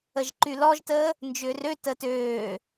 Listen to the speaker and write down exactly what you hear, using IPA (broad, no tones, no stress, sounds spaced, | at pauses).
ə ʒ ǃ y l ɔ ʒ t əː | n d͡ʒ ʏː r ø t əː t øː